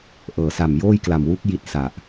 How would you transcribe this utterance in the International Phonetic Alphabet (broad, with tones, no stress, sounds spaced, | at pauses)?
ʔ ɤː˩˦ s a˨˩ m j oː˥˩ j k l a˨˩ m w u˦˥ k̚ j i˦˥ t̚ s a˨˩ ʔ